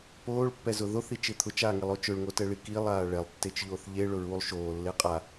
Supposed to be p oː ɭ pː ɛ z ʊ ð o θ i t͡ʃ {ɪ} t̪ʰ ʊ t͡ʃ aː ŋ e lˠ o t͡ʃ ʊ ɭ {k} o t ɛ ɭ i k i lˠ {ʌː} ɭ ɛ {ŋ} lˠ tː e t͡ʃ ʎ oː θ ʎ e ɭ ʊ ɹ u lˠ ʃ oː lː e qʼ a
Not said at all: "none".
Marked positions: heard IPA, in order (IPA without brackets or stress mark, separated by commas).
ɪ, ŋ, aː, none